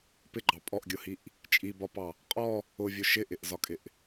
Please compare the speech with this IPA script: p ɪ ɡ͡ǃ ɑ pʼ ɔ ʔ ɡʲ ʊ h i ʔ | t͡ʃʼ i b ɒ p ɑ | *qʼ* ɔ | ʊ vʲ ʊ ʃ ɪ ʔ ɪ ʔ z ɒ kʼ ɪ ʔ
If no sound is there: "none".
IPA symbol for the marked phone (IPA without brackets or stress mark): qʼ